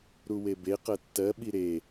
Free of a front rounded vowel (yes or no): yes